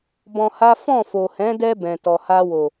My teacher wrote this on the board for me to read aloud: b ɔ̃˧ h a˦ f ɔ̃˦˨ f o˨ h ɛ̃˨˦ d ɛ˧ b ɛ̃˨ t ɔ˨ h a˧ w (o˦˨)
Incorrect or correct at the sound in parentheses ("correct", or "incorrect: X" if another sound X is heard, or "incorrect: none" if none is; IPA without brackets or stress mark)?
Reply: incorrect: o˨